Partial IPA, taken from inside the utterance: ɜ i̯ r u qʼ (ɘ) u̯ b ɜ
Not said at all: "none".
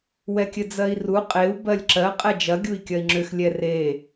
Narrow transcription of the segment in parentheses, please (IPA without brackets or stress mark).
e